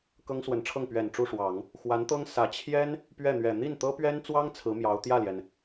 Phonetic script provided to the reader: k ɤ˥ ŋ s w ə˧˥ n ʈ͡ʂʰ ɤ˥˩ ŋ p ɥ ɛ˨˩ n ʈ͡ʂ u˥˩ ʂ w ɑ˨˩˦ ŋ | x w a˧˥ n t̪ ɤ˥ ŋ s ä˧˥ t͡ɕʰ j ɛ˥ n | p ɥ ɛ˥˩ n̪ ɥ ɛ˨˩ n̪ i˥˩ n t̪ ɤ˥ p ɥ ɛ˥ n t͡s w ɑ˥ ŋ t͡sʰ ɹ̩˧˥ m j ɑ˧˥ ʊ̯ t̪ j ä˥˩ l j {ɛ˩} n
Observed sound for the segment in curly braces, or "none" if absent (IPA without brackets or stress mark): ɛ˩